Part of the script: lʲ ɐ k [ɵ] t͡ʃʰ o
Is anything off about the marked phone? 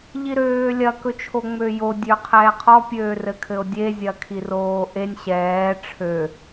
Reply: no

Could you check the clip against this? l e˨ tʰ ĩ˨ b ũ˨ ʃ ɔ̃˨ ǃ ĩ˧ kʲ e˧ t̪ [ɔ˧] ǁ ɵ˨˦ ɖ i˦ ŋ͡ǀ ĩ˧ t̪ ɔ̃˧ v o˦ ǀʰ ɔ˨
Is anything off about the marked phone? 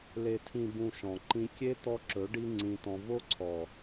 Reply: no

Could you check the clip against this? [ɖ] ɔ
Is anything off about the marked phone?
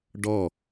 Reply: no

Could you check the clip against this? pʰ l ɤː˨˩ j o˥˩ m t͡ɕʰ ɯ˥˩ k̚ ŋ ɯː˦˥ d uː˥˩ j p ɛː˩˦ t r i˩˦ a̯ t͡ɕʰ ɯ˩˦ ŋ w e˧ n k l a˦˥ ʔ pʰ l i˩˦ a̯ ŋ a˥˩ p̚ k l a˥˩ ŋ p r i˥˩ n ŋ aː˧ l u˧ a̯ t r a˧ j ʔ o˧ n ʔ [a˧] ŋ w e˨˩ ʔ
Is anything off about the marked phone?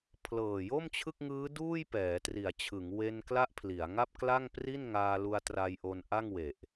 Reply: yes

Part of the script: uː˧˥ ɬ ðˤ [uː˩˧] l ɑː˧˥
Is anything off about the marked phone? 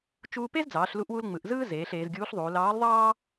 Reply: no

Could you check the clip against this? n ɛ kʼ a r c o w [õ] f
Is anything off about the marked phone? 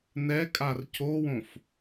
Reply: no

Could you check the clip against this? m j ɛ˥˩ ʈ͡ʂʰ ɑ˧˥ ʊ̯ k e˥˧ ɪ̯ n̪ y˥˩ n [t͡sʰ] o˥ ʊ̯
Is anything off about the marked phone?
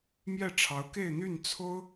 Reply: no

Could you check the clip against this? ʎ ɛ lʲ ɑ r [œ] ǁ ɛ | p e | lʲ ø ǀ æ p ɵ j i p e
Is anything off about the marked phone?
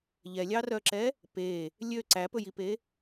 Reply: no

